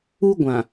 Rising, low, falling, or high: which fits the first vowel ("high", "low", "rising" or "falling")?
high